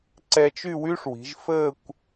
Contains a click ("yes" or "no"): yes